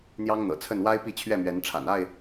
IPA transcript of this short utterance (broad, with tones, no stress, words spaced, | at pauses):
n̪jɑ˦ŋn̪ɤ̰˨˩t͡sʰə˥˨n wa˦ɪ̯ pi˥˨t͡ɕʰɥɛ˥˨mɥɛ˨˦n ʈ͡ʂʰa̰˨˩na˥˨ɪ̯